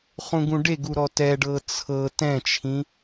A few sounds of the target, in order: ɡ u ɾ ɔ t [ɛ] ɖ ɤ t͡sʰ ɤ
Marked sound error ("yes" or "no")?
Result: no